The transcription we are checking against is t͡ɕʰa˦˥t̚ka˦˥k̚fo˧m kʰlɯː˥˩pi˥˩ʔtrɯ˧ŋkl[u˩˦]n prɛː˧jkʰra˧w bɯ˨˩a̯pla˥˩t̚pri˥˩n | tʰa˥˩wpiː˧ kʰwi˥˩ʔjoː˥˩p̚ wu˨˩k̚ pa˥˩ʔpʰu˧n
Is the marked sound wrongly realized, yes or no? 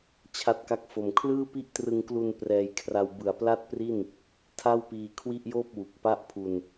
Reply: yes